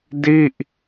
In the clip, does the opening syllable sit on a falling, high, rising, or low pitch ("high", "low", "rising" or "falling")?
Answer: falling